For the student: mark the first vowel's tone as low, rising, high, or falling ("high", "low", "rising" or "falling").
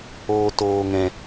high